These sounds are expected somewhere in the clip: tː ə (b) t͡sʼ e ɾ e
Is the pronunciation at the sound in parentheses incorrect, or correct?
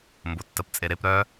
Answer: incorrect: p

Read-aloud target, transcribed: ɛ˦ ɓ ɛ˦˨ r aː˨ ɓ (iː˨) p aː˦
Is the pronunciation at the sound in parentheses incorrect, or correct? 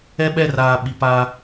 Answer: incorrect: i˨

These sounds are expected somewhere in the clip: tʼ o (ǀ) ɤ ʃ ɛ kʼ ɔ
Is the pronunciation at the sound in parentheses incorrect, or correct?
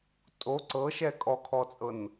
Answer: correct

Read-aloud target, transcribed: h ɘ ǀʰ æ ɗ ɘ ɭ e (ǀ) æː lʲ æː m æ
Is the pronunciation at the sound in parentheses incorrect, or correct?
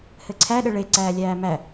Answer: correct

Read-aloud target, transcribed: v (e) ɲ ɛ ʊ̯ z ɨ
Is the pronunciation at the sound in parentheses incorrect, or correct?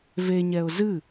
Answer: correct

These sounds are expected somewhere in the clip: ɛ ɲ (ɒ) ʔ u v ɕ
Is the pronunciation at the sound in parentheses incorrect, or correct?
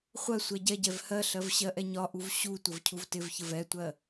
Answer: correct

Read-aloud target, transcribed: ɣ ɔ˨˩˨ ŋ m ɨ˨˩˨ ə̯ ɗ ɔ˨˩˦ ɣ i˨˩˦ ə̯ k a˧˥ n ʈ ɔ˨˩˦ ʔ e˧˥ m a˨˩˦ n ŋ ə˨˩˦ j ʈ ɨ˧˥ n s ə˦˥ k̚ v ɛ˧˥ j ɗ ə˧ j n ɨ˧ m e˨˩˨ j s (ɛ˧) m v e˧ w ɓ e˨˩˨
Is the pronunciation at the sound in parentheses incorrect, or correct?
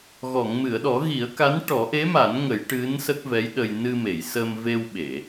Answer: incorrect: ə˧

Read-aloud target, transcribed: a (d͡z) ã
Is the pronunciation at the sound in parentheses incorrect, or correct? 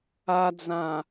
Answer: correct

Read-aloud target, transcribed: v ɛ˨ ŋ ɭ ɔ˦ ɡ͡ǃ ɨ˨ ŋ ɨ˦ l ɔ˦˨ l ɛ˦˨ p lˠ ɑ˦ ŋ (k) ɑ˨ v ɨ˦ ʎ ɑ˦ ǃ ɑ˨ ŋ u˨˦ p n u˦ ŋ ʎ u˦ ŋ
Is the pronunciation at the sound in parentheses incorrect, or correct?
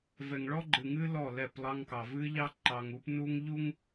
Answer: correct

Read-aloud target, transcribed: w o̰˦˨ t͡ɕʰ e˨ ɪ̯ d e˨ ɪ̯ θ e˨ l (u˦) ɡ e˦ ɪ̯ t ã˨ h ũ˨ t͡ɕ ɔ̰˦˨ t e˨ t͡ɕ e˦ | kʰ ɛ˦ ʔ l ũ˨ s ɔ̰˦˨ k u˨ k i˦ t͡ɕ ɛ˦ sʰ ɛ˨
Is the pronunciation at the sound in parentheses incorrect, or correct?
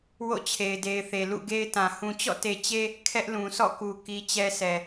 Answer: incorrect: ṵ˦˨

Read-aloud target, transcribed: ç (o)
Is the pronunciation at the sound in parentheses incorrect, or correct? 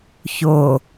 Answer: correct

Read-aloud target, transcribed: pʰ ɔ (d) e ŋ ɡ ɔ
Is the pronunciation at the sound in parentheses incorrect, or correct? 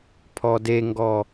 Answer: correct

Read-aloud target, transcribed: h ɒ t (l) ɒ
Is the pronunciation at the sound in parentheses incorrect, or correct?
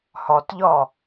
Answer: incorrect: ʎ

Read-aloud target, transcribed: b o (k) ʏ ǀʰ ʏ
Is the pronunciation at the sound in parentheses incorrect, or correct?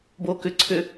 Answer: correct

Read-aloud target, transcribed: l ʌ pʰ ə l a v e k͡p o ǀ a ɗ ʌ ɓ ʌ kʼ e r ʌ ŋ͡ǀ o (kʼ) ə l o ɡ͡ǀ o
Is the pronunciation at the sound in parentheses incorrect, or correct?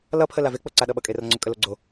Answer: correct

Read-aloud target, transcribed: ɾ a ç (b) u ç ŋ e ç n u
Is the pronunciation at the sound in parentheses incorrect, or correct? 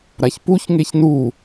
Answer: incorrect: p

